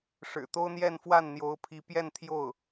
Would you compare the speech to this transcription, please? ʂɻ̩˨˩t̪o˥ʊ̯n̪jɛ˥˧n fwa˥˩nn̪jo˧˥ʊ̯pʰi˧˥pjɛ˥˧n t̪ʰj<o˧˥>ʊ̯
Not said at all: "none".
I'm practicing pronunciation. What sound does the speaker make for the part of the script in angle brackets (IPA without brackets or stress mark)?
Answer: o˥˩